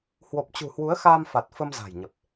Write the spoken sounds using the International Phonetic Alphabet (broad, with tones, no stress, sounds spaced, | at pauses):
h w o˨˩ p̚ t͡ɕ ṳ˨˩ h w u˨˦ ə̯ x aː˧ m f a˨˩ t̚ f ə˧ m z a̤˨˩ j ɲ ə˨˩ p̚